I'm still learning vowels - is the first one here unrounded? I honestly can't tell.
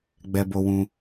yes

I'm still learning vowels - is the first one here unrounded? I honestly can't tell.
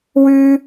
no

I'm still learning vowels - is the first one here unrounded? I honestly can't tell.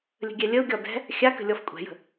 yes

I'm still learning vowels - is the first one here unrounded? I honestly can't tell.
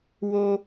no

